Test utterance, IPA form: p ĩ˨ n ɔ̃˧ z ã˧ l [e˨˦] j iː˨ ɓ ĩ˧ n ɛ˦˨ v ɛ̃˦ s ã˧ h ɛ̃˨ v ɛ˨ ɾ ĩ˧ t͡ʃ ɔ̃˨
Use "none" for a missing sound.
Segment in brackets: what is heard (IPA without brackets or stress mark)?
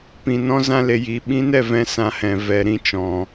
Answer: e˨